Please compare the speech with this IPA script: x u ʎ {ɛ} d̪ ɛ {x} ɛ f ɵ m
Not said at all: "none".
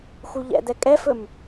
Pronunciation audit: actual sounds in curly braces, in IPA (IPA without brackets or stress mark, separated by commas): ɛ̰, kʼ